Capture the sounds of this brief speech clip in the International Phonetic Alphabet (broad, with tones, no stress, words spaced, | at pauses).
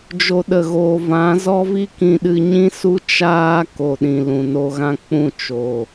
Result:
d͡ʒo˦ɗə˧ɣoː˧ vã˨˦ zɔ˦vi˦kĩ˧ɗɨ˧ ɲĩ˦su˦ t͡ʃaː˦ ko˨ɗĩ˨ lũ˨no˧ɣã˦ k͡pũ˦˨t͡ʃo˨